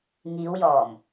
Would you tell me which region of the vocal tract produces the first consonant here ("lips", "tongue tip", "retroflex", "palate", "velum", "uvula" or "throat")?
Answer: velum